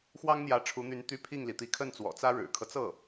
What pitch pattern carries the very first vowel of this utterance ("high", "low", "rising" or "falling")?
high